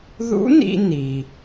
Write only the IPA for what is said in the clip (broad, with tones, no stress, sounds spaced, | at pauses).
ð ṵ˧˥ n ḭ˧ n i˩